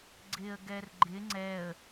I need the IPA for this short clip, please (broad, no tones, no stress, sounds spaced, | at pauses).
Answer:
ɡ͡ǀ ɪ ə̯ ɡ ɛ r ɡ͡ǃ ɪ ŋ͡ǀ ɛ ə̯